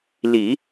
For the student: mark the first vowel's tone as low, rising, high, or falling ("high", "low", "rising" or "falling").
low